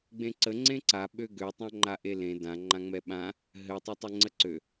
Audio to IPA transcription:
ɡ͡b ẽ ǀ ə ŋ͡ǀ ẽ ǀ a ɓ ø ɡ ø tˤ ã ŋ͡ǃ a ʔ e l ẽ d ã ŋ͡ǃ ã ŋ͡m ɛ ɓ ã | ɦ ɘ tˤ a tˤ ɛ ŋ͡ǀ ə ǀ ø

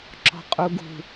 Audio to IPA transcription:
ǁ ɔ̤ qʼ u ɡ ṳ

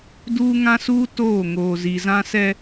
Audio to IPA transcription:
d uː˦ ŋ ã˦ s uː˦ t oː˦˨ ŋ oː˨ z i˨ z ã˦ s ɛ˦

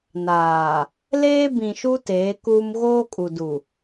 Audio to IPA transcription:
n aː˨ | l eː˦ b ĩ˨ ʃ u˦ t eː˨˦ k uː˦ m ɣ oː˦ kʼ u˨ d u˨

